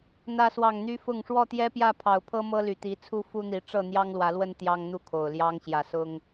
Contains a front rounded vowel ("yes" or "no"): yes